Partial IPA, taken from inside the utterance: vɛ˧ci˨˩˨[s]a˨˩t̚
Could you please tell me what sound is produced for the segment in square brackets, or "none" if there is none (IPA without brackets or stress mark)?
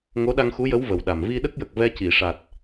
ʂ